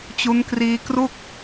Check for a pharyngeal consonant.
absent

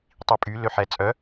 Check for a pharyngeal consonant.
present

